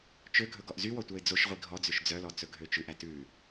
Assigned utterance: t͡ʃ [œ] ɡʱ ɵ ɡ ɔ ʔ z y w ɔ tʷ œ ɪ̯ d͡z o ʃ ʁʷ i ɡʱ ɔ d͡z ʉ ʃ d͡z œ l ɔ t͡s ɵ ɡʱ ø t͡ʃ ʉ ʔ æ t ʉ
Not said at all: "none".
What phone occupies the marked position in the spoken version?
ø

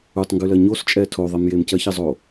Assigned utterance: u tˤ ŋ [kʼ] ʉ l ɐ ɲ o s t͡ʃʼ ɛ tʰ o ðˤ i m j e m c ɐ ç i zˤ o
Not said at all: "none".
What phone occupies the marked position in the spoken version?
ɡ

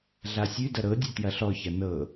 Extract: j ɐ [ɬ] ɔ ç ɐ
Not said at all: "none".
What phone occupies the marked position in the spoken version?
ɬ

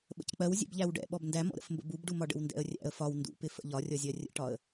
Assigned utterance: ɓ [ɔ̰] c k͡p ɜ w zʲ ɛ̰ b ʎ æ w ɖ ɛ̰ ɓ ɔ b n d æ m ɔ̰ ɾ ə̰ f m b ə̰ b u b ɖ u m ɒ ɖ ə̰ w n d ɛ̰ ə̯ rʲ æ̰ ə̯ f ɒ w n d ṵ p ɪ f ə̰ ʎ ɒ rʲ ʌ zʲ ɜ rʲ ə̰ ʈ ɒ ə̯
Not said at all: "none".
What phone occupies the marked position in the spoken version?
ə̰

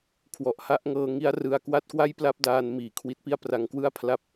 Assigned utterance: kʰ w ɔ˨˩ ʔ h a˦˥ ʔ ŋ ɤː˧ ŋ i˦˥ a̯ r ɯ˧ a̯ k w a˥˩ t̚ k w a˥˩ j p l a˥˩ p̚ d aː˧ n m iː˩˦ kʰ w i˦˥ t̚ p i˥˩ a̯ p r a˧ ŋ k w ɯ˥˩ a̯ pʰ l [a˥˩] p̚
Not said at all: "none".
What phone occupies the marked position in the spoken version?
a˥˩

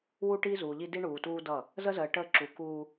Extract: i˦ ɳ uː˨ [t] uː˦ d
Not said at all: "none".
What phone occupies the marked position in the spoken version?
t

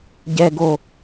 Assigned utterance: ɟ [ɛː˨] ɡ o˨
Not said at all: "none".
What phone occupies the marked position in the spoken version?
ɛː˨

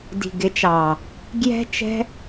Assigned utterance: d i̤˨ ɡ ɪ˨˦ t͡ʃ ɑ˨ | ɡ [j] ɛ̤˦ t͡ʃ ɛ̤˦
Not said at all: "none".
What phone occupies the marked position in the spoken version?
j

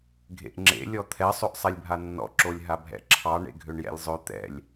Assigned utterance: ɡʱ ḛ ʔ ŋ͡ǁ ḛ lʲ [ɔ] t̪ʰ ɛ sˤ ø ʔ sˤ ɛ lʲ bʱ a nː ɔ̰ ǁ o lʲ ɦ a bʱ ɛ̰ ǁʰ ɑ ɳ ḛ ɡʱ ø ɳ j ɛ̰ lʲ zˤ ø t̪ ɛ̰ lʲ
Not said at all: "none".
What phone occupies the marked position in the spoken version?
ɔ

